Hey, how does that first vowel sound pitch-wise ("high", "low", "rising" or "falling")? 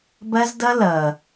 high